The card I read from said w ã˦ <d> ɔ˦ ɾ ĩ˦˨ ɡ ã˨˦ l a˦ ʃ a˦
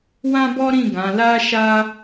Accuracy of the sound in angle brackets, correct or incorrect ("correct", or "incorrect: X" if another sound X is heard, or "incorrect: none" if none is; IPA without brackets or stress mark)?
incorrect: b